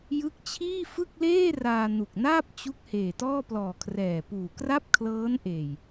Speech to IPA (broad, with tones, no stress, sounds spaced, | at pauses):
j ɯ˦˥ k̚ t͡ɕʰ iː˥˩ f ɯ˥˩ k̚ l eː˥˩ r aː˧ n u˨˩ k̚ n aː˥˩ p̚ t͡ɕ u˦˥ k̚ h eː˨˩ t ɔː˥˩ p l ɔː˨˩ kʰ r ɛː˨˩ p uː˨˩ k r a˥˩ p̚ kʰ l ɤː˦˥ n ʔ eː˨˩ j